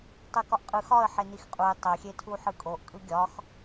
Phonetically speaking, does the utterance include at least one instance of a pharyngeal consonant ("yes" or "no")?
yes